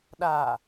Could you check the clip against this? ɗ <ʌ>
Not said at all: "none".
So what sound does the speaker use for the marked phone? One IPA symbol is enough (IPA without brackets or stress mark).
a